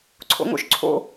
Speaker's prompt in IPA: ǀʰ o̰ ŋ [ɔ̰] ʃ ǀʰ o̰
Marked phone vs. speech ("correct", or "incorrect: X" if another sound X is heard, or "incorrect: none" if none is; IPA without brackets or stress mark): incorrect: o̰